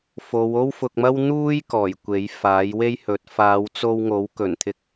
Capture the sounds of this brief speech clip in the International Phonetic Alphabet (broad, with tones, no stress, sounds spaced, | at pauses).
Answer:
f o˨˧ w o˥ w f ʊ˧ k̚ m ɐ˥ w n̪ uː˥ j k ɔː˨˩ j kʷ e˨˥ j f aː˨˥ j w e˥ j h ɵ˨˥ t̚ f aː˨˧ w t͡s o˧ w ŋ o˨˥ w k ɵ˨˩ n t̪ʰ ɪ˧ k̚